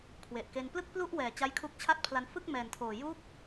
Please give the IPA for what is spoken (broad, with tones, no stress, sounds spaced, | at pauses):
kʰ w e˨˩ ʔ k e˧ n p l ɯ˥˩ k̚ p l u˥˩ ʔ w ɛː˨˩ t͡ɕ a˦˥ j kʰ u˦˥ k̚ t͡ɕʰ a˥˩ t̚ pʰ l a˧ n f ɯ˥˩ k̚ m ɛː˨˩ n tʰ oː˨˩ j u˦˥ k̚